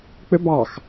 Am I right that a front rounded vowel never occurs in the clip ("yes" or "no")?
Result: no